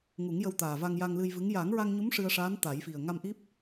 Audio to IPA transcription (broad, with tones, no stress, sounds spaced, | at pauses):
ŋ u˨˩˦ ŋ j ə˧ w t̪ aː˨˩ v a˧ ŋ j a˧ ŋ l ɨ˧ j v ɨ˧˥ ŋ j a˨˩˦ ŋ ɹ a˧ ŋ ɲ u˧˥ m ʂ ɨ˧ ə̯ ʂ aː˧˥ n t̪ a˨˩˦ j f i˨˩ ə̯ ŋ a˧ m ʔ i˦˥ p̚